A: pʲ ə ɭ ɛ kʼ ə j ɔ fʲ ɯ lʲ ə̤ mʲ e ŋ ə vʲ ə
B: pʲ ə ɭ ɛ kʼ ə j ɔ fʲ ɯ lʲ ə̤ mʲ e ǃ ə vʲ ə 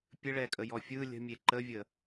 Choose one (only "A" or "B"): B